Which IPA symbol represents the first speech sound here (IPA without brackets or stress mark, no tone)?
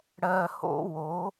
ɽ